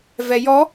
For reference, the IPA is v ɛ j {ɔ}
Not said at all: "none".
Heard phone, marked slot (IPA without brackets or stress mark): ɔ